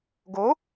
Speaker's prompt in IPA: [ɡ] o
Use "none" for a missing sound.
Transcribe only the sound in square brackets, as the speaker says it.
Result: ɡ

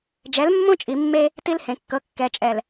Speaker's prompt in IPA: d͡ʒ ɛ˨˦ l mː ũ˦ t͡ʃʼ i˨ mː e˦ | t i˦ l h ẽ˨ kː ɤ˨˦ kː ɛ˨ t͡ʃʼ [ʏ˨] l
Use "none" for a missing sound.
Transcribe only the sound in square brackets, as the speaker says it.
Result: ɛ˨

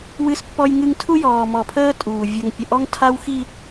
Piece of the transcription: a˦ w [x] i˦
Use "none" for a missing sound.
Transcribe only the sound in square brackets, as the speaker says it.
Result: x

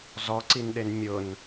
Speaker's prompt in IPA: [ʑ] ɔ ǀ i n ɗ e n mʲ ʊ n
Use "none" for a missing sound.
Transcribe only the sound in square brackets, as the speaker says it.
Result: z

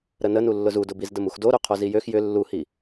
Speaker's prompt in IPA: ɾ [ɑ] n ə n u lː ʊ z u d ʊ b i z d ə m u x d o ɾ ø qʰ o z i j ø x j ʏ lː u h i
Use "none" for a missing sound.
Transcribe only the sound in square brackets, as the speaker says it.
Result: ə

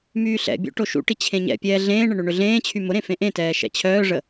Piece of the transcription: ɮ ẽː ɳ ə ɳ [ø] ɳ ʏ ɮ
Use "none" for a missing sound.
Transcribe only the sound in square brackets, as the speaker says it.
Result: ø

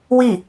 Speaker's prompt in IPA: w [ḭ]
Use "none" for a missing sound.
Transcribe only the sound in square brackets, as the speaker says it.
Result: i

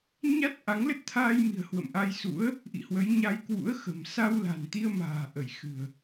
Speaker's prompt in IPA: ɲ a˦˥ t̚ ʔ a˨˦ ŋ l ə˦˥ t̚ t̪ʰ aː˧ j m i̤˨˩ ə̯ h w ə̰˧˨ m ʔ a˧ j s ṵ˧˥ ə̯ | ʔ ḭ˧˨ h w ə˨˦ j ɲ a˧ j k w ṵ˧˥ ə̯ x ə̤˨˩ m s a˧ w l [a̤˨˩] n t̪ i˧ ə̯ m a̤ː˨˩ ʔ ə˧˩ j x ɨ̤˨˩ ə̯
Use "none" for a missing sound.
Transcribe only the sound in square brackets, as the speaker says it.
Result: a̤˨˩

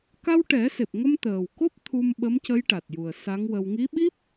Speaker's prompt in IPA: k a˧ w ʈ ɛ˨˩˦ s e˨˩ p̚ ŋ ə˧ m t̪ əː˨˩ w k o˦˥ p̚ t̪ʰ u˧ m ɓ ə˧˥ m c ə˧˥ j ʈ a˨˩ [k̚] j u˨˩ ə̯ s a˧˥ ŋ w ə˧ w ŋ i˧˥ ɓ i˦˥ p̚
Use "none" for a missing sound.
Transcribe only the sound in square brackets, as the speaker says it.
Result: t̚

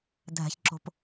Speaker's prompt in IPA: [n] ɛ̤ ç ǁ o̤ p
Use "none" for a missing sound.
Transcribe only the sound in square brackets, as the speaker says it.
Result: dʱ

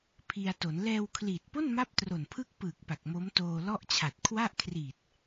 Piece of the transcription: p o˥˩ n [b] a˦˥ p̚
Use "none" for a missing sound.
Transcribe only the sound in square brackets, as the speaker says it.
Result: m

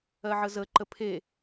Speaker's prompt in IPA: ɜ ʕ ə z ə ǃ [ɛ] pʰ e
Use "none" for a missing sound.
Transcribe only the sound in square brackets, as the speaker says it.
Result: ə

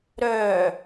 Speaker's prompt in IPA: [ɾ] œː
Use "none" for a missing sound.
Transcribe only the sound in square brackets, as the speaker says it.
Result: ɾ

